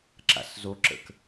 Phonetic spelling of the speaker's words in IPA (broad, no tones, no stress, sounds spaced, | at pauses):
ǁ a̰ s z o ǁ ə̰ k